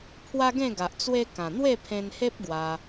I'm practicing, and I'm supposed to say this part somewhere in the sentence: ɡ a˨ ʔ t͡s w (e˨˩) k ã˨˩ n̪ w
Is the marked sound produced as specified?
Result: no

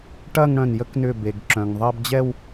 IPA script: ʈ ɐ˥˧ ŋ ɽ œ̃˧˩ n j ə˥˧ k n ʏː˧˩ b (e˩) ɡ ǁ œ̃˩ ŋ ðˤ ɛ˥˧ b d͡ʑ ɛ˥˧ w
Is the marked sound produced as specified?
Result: yes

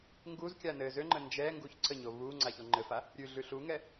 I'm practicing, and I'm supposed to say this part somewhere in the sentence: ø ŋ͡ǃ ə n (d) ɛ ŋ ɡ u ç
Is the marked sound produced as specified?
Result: no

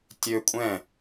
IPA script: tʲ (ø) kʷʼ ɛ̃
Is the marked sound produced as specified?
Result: yes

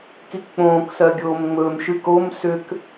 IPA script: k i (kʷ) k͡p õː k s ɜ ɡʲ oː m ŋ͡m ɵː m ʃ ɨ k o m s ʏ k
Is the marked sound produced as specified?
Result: no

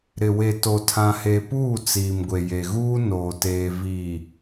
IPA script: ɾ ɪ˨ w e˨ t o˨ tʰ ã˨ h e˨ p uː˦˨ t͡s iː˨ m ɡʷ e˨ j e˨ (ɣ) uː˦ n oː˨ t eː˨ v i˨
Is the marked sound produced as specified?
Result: yes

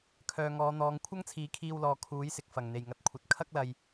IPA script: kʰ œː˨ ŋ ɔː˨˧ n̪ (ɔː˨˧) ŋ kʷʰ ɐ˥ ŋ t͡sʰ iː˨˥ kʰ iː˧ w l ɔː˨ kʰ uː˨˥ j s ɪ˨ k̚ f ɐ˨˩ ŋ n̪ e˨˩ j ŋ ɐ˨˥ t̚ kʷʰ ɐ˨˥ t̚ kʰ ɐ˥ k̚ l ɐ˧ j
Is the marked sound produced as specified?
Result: yes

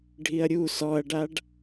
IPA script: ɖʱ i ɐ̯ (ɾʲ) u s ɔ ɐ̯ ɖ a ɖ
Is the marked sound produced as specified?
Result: yes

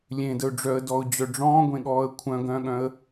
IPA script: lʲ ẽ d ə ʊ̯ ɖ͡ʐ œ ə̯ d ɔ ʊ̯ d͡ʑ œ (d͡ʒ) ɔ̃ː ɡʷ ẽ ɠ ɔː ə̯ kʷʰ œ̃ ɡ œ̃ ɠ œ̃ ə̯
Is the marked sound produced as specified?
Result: no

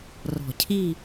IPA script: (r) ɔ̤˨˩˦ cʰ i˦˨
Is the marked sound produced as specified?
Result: yes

